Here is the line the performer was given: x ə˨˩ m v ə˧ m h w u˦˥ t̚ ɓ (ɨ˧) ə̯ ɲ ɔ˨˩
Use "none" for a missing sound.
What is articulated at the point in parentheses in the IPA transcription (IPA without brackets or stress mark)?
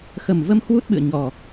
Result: ɨ̰˧˨